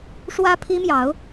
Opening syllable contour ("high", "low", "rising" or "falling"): high